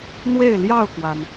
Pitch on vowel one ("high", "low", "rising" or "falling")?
falling